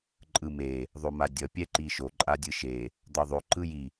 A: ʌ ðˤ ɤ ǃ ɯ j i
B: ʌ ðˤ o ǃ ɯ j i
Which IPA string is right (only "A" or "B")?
B